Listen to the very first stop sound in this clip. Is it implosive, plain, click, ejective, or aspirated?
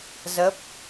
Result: plain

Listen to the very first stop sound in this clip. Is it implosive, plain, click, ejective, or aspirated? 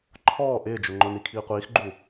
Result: click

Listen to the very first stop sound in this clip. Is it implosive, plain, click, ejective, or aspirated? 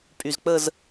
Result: ejective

